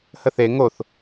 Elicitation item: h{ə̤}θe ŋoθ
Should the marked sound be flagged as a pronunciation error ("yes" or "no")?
yes